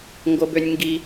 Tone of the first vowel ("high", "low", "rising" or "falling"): high